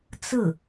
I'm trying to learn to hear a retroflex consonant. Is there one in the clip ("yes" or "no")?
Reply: no